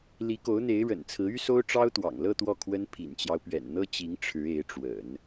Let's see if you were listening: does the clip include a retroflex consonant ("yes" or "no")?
yes